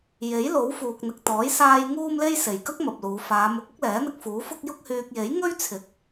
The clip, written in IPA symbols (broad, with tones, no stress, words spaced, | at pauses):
je˨˥jlo˨˥wfuː˨k̚ n̪ɪ˨k̚t̪ɔː˨˥j saː˧j ŋuː˥mle˥j se˨˩jkɐ˥k̚ mɐ˨p̚luː˨˧ faː˨˧mʊ˨˥k̚ʊ˥k̚lɛː˨˥ n̪ɪ˧k̚fuː˨˥fʊ˥k̚ jʊ˥k̚hyː˧k̚ je˨˥jŋɵ˥ɥt͡sʰɪ˨˥k̚